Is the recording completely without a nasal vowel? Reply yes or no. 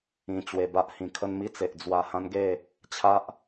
no